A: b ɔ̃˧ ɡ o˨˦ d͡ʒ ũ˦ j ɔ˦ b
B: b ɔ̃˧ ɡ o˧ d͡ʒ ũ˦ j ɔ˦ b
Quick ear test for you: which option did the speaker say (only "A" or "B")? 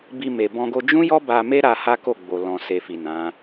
B